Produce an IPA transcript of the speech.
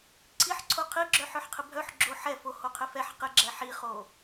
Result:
ǀʰ i ħ ǀʰ o qʰ i ɡ͡ǁ œ ħ œ ħ qʰ ɪ bʱ œ ħ ɡ͡ǁ o ħ ɛ f o h o qʰ ɪ f ɛ ħ q ɪ ɡ͡ǁ ɛ ħ i χ o

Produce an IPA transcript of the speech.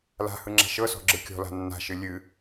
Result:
l a̤ h ɯ ŋ͡ǁ a̤ ʃ ɤ s ɔ̤ ɡ͡ǁ ɯ kʲ ɔ̤ l a̤ nː a̤ ʃ ɨ lʲ ɨ

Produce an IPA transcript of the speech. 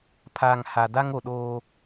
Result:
pʰ aː˨ ŋ h a˨ d a˦ ŋ o˨ ɗ oː˦

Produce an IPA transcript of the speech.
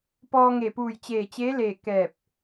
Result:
p ɔː˧ ŋ e˧˩ p uː˧˩ j t͡ɕ eː˧˩ t͡ɕ eː˧˥ l eː˧˩ k ɛː˧˩ p̚

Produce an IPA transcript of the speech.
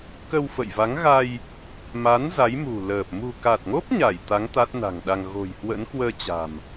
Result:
k ə˧ w f ə̰˧˨ j v a˨˦ ŋ ɣ a˧ j | m a˨˦ n z a˨˦ j m ṳ˨˩ l əː˨˩ p̚ m ṳ˨˩ k a˨˩ t̚ ŋ o˦˥ p̚ ɲ a˧˩ j t̪ a˨˦ ŋ t̪ a˦˥ t̚ n a̤˨˩ ŋ ɗ a˧ ŋ ɣ o̤˨˩ j h w ə̰˧˥ n k w əː˧ t͡ɕ a̤˨˩ m

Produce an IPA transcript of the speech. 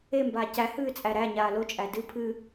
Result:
e m b aː c æ h ɨː t͡sʼ æ ɾ æ ɲ aː l o t͡ʃʼ æ d ɨ pʰ ɨ

